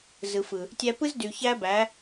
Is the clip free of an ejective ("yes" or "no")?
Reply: yes